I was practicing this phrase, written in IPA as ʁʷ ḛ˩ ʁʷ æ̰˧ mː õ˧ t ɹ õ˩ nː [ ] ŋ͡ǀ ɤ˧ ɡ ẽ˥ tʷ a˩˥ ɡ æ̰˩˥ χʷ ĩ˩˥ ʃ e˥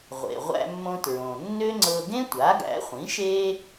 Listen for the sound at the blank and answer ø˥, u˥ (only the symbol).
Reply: ø˥